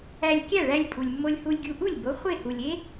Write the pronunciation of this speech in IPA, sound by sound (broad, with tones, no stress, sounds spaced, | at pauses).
æ˧ lʲ kʲ æ˥˩ ɭ æ˧ lʲ pʼ u˩ lʲ mː o˧ lʲ h u˧ lʲ ɡʲ u˧ ʔ u˥˩ lʲ b o˩˥ χʷ e˥˩ h u˩ lʲ e˥